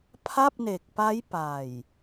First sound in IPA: pʰ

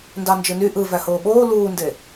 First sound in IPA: n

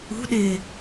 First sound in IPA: ṳ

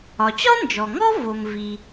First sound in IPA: ɒ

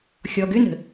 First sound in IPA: xʲ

